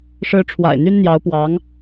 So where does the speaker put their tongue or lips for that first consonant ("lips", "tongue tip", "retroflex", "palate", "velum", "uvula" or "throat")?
retroflex